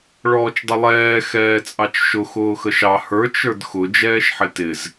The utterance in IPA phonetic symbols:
ɭ ɔː t͡ʃ dˤ ə lˠ ɛː x ɛː t͡sʼ ɑ t͡ʃ ʃ ʊ x ʊː x ə ʃ ɑ h ə˞ t͡ʃ ə˞ d x ʊ d͡ʒ ɛː ʃ ħ ɪ t ɪ z

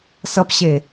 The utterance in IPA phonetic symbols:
s ʌ p ɕ e

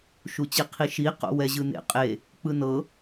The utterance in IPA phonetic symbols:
ʃ u t͡ɕ i qʰ i ʃ i q o̰ w ɛ ʑ ɯ n ḛ qʼ e | k͡p ɯ n ɤ

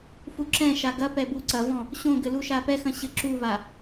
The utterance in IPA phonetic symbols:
f u ǁ ɛ̃ ʃ a ɡ ɐ p ɛ b u ǀ ɐ v ɔ̃ | ɕ õ ɡ ɘ l u ʃ a p ɛ x ɐ̃ ɕ ɘ ǁ u v a

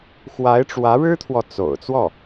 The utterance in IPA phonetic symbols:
x w a˧˥ ɪ̯ ʈ͡ʂ w ä˧˥ ɻ ɻ̩˥ t̪ʰ w ɔ˨ t͡s o̰˨˩ ʊ̯ t͡s w ɔ˥˩

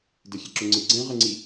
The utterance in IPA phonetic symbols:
d ɘ xʲ ɛ ǁ ʊ ŋ͡ǀ ɨ ɡ͡ǀ ɛ̃ ʁ ə ŋ͡ǀ i

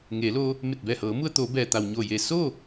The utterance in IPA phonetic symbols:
ŋ eː˩˧ l oː˧ | m e˧˩ t̚ b ɛː˧˩ h ɤː˩˧ m u˧ ə̯ t̪ oː˩˧ b ɛː˩ t̪ a˩ w ɲ o˧˩ j e˧˩ s oː˥˨

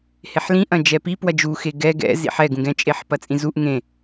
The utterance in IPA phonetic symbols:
h e ħ l ĩ ʔ ɐ̃ d͡ʒ ɛ p i p w ɐ d͡ʒ u x e ɡ ɛ ɡ ɛ̰ z ḭ ħ ɛ ɡ ũ ɡ ɛ̃ t͡ʃʼ e ħ p ɐ t͡sʼ ĩ z u ʔ ŋ ẽ

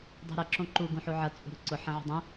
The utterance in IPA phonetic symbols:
dˤ ṳ ɾ ɐ ǁ õ ǃ u ɡ ũ ħ u ʕ ɐ t͡sʼ ṳ ɾ ṳ ǀ ʊ ħ ɐ̃ ʕ ṳ dˤ ũ

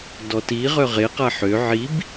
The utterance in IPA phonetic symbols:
d ɔ t i ʁ œ ʁ e q a ħ ø ʕ i b

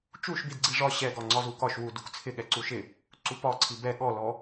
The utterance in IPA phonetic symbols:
t͡ʃ u ʃ b i d ɡ͡ǀ i ʐ ɒ ɕ ɛ ɡ ɒ ŋ͡ǀ ɒ z u k ɒ ʃ w u d u k t͡sʰ ɪ ɠ ɛ ǀ u ʃ ɪ | ǀ u p ɒ ǀʰ i b ɛ ɠ ɔ l ɔ

